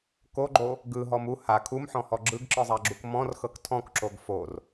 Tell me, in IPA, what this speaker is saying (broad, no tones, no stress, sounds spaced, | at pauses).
k o ɡ͡ǃ o | ɡ ɯ ɦ ɔ m u h a kʰ u m ħ ɔ̃ h ɔ ɡ͡ǁ ɯ ɡ ǁ ɯ zˤ a ɡ͡ǁ u k m ɔ̃ r x ɤ k tʰ ɔ̃ k ǁ o ɡ f o r